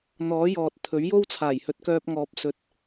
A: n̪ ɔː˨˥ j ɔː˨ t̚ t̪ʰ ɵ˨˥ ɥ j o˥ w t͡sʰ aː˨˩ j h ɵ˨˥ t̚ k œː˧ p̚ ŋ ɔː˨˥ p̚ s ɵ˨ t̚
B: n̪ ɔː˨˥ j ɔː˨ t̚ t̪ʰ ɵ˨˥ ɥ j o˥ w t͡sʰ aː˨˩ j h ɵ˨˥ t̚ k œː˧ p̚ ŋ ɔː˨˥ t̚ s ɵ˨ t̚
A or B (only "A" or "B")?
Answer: A